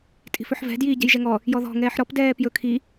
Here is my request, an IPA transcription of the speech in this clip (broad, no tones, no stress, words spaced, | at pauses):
tʼi̤fɵħvɛ̤ djiːɟɛ̤jʒɛŋɔ | jɔðɔ̤ ŋɛːħɾɔp dɛːpjɵ kʰi